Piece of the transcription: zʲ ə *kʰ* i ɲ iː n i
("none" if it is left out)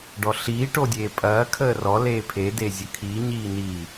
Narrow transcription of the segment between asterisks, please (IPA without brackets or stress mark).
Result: kʰ